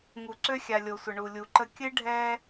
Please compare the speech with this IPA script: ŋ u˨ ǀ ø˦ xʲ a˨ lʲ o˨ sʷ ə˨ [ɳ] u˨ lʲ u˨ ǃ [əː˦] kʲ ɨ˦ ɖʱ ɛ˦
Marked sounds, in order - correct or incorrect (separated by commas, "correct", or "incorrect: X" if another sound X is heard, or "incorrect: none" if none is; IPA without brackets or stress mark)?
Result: correct, incorrect: ə˦